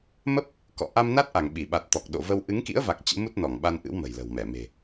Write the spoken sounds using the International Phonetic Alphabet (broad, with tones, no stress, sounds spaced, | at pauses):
m ə˦˥ p̚ | k ɔ̰˧˨ ʔ a˧ m n a˦˥ t̚ ʔ a˧˩ ŋ ɓ i˧˩ ɓ a˨˩ t̚ t̪ ɔ˨˩ k̚ ɗ o̰˧˨ v ə˧ w ʔ ɨ˨˦ ŋ k ḭ˧˥ ə̯ v a˨˩ k̚ t͡ɕ ɨ̰˧˥ m u˦˥ t̚ n ɔ˧˩ ŋ ɓ a˧ n ʔ ɨ̰˧˥ w m ə̤˨˩ j l ə̤˨˩ w m ɛ˧˩ m e̤˨˩